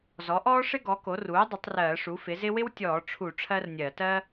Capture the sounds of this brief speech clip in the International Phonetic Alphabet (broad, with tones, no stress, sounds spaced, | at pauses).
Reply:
z ɔ˩˥ ʔ ɔː˥ ʂ ɪ˥ ɡ ɔ˩˥ k o˩˥ r uː˩˥ dˤ ɪ˩˥ tˤ r ɜː˧˩˧ ʂ u˩˥ f ɪ˩˥ z ɪ˥ w ɪ˥ w tʲ ɔː˧˩˧ ʈ͡ʂʰ u˧˩˧ ʈ͡ʂʰ ɜ˥ r nʲ ɜ˧˩˧ t ɜ˥